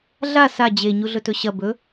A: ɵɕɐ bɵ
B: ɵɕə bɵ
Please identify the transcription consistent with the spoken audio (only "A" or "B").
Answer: A